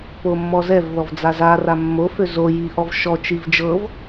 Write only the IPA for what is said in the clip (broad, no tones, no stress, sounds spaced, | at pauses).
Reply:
p o mː ɔ z ɛ v ð ɔ v d͡z a z a r a mː o f ø z o j i ʔ ɔ v ʃ ɔ t͡ʃ i v d͡ʒ ɤ v